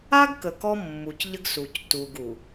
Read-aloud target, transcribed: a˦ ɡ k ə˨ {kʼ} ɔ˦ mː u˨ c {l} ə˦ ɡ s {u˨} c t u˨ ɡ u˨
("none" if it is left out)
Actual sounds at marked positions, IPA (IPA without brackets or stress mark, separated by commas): k, ʎ, u˨